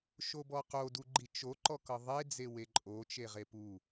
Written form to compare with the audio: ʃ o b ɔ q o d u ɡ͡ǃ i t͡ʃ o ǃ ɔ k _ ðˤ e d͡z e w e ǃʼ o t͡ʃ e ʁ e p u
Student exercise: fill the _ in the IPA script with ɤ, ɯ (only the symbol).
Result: ɤ